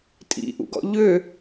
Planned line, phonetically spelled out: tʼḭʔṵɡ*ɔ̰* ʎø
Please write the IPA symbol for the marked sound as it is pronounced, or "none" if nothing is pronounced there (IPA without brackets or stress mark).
ɔ̰